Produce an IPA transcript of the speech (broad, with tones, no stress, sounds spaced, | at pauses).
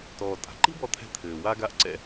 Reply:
t ɔː˩ tʼ a̤˩ ǃ i̤˥ b ɔ˧ t̪ʰ ɛ̤˧ t̪ʰ ɘː˩ w a˧ ɡ a˧ ʔ ǀ ɛ̰˧